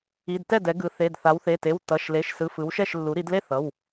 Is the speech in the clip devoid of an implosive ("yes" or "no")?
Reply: yes